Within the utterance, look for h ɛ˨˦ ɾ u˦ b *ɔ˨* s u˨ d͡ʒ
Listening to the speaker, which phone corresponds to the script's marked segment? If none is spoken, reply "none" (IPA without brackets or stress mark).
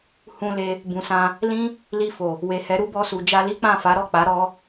ɔ˧